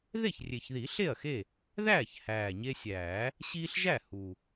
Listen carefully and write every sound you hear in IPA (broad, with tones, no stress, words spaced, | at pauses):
ðe˥˩çrʲe˨˩çði˨˩˦ ɬe˥˩ɐ̯xe˥˩ | ðæː˥˩ç hæː˨˩ɲe˦sʲæː˨˩˦ | ɕiː˦ɬʒæ˥˩ hu˨˩